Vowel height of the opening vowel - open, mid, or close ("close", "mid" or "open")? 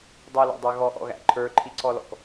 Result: mid